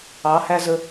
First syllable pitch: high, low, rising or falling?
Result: rising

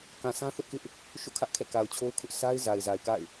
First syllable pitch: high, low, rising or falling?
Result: low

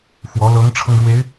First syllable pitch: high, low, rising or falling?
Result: rising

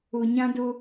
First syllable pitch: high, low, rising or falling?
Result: low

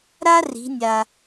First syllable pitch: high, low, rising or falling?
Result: high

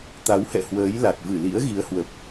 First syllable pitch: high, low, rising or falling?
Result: rising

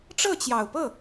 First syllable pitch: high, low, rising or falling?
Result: falling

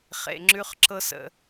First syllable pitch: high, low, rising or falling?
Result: low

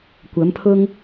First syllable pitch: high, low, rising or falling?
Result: rising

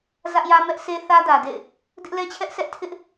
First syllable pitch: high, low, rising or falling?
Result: high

